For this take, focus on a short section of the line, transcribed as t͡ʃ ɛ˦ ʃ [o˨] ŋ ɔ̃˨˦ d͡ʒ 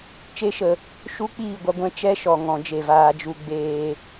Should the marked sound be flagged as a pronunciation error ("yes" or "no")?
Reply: yes